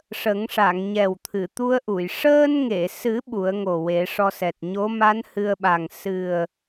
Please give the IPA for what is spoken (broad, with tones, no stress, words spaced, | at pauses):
ʂə˨˩˦ŋʂa˨˩˨ŋ ɲɛ˨˩wt̪ʰɨ˨˩˨t̪u˧ə̯ʔu˨˩˨j ʂəː˧nŋe˨˩˨sɨ˨˩˦ ɓu˨˩˦ə̯ŋo˨˩ we˨˩˦ʂɔ˧sɛ˨˩t̚ ɲo˧˥ma˧˥n hɨ˧ə̯ɓa˨˩ŋ sɨ˨˩ə̯